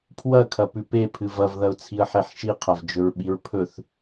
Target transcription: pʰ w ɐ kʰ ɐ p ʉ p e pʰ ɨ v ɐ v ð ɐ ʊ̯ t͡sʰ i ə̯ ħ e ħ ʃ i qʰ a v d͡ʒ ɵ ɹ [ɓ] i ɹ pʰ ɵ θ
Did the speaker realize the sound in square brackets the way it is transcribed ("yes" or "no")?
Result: yes